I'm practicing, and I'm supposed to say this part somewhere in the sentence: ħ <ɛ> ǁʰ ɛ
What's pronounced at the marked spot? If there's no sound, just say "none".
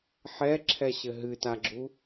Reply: ɛ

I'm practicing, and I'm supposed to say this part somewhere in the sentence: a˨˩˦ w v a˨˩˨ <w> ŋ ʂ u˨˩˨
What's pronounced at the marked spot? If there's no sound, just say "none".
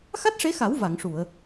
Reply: none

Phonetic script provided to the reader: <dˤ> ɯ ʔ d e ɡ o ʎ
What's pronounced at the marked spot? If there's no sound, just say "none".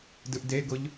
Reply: d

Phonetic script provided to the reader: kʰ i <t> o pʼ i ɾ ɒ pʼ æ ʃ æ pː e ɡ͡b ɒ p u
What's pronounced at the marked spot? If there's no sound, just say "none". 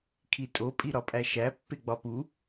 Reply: tʼ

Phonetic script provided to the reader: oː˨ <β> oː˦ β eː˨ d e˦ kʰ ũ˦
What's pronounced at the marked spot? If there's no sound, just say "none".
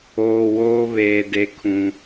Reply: w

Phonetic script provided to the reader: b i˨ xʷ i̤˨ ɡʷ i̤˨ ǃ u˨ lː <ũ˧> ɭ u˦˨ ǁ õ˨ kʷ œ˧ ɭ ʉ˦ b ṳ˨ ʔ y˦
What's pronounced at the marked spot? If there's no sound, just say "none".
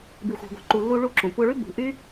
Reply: u˧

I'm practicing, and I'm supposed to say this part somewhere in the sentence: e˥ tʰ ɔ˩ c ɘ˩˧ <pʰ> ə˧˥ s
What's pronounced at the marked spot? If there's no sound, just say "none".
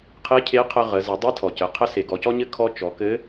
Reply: qʰ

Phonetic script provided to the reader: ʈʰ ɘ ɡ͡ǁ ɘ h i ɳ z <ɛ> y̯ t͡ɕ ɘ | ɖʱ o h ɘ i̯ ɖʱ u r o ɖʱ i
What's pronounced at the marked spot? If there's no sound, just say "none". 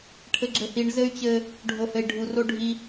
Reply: ɘ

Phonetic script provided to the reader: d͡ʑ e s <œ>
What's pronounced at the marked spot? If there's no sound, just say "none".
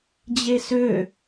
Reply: ø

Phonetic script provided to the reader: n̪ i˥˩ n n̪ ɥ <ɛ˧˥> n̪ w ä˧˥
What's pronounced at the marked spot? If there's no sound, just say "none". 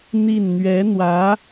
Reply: ɛ˧˥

